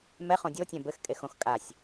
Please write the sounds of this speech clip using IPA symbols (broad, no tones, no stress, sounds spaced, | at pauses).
m ɛ χ õ dʲ o tʲ ɛ̃ b ɘ x kʼ e x õ x kʼ a sʲ